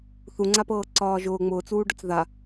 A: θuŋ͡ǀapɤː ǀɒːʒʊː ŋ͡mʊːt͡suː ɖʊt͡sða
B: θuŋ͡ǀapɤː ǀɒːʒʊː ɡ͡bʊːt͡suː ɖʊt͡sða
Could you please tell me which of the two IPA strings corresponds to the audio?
A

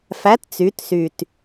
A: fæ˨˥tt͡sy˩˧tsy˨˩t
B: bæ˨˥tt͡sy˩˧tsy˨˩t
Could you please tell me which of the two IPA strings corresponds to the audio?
A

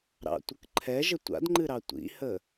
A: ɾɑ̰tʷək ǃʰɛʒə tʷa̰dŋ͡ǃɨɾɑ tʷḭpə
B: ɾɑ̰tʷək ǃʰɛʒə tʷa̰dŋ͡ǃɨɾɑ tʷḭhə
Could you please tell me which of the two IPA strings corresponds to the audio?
B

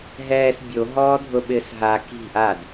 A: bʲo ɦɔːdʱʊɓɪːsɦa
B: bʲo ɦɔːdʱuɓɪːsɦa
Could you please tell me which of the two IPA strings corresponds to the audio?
A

